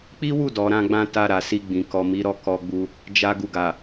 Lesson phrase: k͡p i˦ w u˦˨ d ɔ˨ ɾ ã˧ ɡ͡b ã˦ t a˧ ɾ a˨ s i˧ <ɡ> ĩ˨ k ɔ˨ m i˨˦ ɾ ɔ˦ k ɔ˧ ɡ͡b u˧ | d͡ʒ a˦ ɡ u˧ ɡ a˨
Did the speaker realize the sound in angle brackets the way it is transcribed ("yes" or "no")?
no